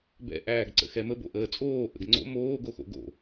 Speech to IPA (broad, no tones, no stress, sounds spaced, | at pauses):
b ɛ̰ ʔ æː ɡ ǀ ə̰ x ɛ m ə b o̰ ʔ əː t͡sʼ oː ʔ ə̰ ɡ ŋ͡ǀ o̰ m oː ɡ o x o̰ ɡ o̰